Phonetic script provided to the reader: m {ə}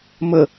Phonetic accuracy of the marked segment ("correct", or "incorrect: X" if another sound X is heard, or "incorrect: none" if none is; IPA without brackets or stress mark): correct